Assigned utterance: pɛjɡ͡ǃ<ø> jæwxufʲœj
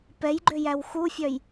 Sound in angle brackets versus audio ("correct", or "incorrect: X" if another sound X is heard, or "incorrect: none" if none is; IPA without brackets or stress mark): correct